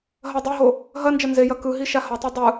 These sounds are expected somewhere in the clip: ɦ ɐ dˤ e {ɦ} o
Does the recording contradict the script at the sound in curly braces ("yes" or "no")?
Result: no